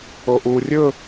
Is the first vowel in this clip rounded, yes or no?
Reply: yes